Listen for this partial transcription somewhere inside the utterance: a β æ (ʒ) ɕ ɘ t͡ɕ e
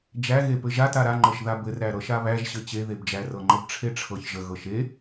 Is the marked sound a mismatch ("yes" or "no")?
no